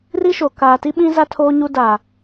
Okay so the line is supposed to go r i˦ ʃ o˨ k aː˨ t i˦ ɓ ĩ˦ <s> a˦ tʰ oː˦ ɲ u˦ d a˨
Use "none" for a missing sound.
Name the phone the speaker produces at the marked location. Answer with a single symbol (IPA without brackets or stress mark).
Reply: z